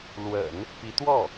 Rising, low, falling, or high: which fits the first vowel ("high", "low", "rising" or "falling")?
low